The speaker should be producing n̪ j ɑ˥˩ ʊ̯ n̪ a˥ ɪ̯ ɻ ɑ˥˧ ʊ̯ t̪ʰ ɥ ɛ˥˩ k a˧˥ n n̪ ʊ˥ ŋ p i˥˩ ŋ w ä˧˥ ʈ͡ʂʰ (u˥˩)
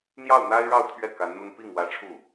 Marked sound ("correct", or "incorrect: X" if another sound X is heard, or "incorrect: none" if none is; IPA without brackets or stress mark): correct